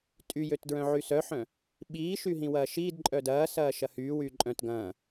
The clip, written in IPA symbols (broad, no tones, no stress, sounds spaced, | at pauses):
tʼ y j ø t d ɹ œ̃ ʕ y s œ ħ œ̃ | ɓ iː ʃ y ɦ ĩ w ɐː ʃ iː d ǃʼ œ d ɐː s ɐː ʃ ɐ h yː w yː ǃʼ œ̃ t ɡ ɐ̃ː